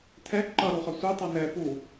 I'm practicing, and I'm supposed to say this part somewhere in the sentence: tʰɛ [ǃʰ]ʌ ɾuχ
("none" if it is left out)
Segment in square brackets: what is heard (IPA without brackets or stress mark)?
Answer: ǃ